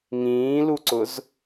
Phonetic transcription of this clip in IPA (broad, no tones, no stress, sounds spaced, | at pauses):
ŋ ĩː l u ǀ ʊ z